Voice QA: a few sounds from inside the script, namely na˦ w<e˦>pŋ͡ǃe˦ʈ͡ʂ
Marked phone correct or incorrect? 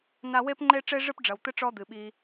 correct